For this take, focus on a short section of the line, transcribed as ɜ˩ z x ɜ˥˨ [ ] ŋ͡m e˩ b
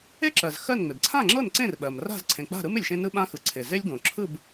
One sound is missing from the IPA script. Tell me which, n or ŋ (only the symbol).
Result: n